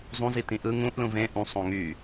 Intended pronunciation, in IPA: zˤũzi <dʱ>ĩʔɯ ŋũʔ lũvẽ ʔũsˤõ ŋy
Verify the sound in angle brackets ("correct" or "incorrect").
incorrect